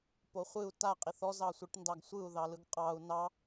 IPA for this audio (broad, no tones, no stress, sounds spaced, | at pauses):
p o χʷ ɨ u̯ t a qʼ i θ ɔ z ɑ sʷ i ʈ n d ɑ ɡ sʷ ɯ u̯ ð ɑ l ɯ ɡ qʼ ɑ u̯ n ɑ